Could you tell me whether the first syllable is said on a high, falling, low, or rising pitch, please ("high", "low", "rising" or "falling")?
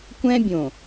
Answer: high